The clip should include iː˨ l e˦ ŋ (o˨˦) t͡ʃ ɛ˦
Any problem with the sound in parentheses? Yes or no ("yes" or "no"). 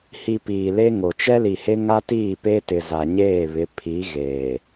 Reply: yes